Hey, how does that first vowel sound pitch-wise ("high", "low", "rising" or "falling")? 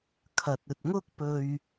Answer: low